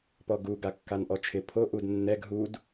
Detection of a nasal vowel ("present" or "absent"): absent